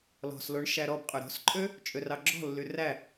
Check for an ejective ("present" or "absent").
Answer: present